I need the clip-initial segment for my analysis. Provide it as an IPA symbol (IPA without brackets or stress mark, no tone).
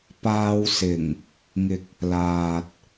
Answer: p